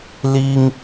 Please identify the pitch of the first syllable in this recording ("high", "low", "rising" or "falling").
high